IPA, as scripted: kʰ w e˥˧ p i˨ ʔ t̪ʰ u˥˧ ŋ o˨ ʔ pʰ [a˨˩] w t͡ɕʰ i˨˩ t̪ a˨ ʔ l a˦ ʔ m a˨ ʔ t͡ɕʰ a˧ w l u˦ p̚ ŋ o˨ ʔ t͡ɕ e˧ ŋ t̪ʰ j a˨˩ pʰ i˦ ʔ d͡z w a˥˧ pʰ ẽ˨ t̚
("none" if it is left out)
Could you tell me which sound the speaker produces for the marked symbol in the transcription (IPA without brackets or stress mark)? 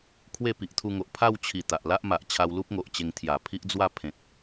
a˥˧